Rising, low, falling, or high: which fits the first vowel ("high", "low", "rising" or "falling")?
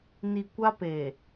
low